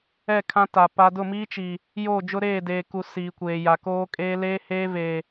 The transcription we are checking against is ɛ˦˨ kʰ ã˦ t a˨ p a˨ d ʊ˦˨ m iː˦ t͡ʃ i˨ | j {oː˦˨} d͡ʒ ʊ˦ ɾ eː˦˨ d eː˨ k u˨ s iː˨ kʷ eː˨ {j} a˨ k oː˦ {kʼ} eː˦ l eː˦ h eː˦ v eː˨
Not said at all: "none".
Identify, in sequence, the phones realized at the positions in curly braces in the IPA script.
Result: oː˦˨, j, kʼ

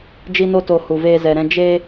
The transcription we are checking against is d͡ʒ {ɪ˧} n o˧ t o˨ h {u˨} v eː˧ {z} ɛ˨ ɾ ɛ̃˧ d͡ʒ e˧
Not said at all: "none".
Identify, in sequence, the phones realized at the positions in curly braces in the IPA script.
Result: i˧, u˨, z

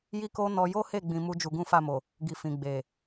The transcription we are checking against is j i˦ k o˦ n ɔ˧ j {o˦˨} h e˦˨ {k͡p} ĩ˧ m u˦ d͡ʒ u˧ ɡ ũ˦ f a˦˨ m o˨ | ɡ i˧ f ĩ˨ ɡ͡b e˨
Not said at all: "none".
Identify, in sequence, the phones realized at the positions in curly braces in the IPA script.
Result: o˦, ɡ͡b

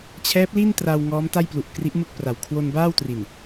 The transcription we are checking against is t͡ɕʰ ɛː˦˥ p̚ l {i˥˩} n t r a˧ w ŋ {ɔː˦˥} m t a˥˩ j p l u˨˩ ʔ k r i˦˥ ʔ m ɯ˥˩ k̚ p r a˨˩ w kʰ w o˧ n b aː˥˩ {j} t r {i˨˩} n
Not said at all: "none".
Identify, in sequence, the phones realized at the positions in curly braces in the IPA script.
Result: i˥˩, ɔː˦˥, w, i˨˩

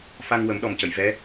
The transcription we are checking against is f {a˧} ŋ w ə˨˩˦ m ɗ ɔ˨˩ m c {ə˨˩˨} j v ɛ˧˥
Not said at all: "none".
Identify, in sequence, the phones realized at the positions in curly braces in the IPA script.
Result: a˧, ə˨˩˨

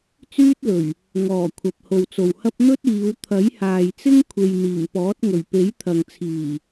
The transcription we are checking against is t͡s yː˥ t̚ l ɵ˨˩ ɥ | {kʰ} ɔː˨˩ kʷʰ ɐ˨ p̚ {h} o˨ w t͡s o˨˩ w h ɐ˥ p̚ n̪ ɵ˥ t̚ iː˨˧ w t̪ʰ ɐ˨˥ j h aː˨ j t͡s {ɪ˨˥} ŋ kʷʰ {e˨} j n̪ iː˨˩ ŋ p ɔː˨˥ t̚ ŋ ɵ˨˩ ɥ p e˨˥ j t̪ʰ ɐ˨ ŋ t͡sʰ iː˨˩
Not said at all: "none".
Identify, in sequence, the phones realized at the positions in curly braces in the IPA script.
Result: ŋ, h, ɪ˥, e˨

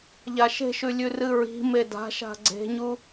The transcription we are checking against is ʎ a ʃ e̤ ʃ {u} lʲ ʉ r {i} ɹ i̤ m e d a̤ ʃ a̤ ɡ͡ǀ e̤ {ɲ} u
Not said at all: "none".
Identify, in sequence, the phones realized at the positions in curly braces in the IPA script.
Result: ʉ, ɨ, ɲ

